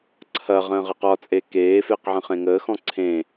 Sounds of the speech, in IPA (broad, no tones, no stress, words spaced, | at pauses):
ǀʰɐ ʁə̃ːʁɘqɒt͡sʼe keːfeq ʕə̃χẽŋəːxɔ̃ ǀʰẽ